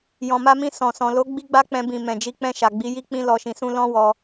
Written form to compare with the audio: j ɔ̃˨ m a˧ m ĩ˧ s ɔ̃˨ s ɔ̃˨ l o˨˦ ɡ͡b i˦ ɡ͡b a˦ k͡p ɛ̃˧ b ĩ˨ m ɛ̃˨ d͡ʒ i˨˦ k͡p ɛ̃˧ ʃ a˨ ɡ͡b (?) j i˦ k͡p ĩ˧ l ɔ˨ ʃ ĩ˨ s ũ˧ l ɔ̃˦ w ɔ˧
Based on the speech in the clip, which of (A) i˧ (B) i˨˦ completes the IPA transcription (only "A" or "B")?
B